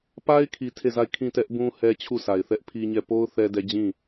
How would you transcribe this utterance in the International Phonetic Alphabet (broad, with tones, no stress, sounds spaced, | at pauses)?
p a˦ ɪ̯ kʰ i˨ tʰ e˦˨ z a˦˨ ɪ̯ kʰ ĩ˦˨ t ɛ˦ ʔ b ũ˦ h ɛ˦ t͡ɕʰ u˦˨ sʰ a˨ ɪ̯ θ ɛ˦ ʔ pʰ i˦ ɲ ɛ˦˨ p o˦ ʊ̯ θ ɛ˦ d ɛ˦ d͡ʑ ĩ˦˨